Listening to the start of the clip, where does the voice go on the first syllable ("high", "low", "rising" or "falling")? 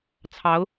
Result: rising